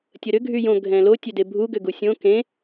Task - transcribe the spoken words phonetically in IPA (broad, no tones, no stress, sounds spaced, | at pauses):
tʲ ə ɾ ʏ ɡʱ y j õ ɡʱ ɛ̃ l o tʲ ø d e bʱ u ɡ ʏ ɡ u sʲ õ k ẽ